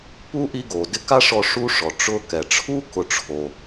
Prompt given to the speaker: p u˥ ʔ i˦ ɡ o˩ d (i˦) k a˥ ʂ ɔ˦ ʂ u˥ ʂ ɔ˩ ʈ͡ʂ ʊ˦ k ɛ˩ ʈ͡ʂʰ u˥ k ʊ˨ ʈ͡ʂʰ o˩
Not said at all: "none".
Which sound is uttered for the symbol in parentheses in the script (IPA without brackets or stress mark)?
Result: ɪ˦